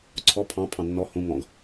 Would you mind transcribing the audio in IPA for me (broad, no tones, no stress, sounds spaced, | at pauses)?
ǀʰ ɔ pʰ ɑ̃ pʰ ɑ̃ nː ɔ h ũ ŋ ɔ̃ ɡ